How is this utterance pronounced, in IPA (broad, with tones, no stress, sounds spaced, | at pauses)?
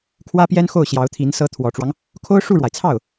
kʰ w ä˥ p j ɛ˥ n x o˥˩ ʊ̯ ɕ j ɑ˧˥ ʊ̯ t̪ʰ i˧˥ n s ɤ˧˥ t̪ʰ w ɔ˨˩ ʈ͡ʂ w ɑ˦ ŋ | kʰ o˥ ʊ̯ ʂ u˥˩ ɻ w a˩ ɪ̯ t͡sʰ ɑ˥˩ ʊ̯